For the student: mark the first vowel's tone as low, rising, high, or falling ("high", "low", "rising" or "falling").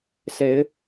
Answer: rising